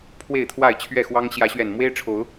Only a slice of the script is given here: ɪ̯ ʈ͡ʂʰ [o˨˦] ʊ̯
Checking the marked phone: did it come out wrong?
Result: no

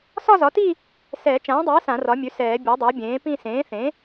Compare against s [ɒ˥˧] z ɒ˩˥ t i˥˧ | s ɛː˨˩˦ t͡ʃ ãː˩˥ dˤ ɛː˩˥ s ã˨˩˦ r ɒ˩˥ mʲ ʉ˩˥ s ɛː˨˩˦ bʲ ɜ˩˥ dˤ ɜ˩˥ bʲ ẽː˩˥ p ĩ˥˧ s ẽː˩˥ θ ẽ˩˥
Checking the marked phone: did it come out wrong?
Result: no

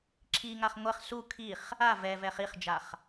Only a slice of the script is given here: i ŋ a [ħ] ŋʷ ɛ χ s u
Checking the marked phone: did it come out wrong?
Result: yes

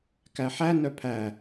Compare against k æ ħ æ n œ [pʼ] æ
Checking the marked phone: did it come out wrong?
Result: yes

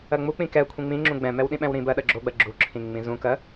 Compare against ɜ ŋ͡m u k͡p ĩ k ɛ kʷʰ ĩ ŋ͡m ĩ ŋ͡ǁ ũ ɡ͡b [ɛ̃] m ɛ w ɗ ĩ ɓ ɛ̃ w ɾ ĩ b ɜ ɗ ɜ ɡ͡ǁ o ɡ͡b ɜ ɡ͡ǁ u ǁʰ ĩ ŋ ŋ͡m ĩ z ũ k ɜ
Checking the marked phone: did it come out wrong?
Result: no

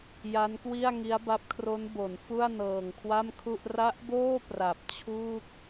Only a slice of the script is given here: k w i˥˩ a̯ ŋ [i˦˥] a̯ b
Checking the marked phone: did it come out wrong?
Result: no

